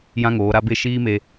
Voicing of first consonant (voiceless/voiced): voiced